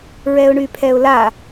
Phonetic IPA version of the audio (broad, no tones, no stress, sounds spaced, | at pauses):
ɹ ɛ ʊ̯ ɳ y pʰ ɛ ʊ̯ l a